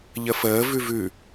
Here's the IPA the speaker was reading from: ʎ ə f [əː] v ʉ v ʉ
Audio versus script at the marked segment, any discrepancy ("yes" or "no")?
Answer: no